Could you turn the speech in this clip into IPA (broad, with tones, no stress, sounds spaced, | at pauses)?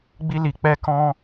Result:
ɡ͡b i˧ l i˨ k͡p ɛ˧ k ɔ̃˧